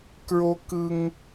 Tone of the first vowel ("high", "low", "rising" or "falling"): high